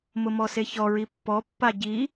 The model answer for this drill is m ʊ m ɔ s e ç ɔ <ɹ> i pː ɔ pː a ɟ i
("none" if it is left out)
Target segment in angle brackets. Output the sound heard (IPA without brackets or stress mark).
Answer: ɹ